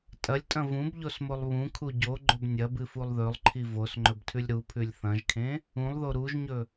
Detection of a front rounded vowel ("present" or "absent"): absent